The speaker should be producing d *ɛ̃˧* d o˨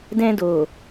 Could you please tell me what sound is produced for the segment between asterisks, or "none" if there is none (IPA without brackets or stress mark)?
ɛ̃˧